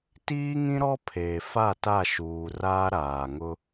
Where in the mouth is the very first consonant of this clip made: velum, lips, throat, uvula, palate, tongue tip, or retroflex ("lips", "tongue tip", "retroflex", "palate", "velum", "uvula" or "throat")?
tongue tip